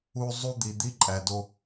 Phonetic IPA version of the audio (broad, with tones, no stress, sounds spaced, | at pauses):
u˦ zˤ u˦ d̪ i˨ d̪ i˦ ǃʼ æ˨ d o˦